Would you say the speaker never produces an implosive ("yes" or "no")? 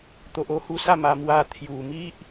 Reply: yes